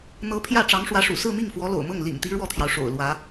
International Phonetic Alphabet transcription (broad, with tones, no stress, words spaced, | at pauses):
n̪ɤ˧˥pʰjä˥˩ ʈ͡ʂɑ˧˥ŋʂwä˧˥ʂṵ˨˩ sɹ̩˥˧mi˥˩ŋ fwɔ˧˥lo̰˨˩ʊ̯mɤ˥˩ŋ lḭ˨˩ŋt̪i˧˥ ɻwɔ˥˩t̪ʰjɑ˩ʊ̯ ʂo̰˨˩ʊ̯lwä˧˥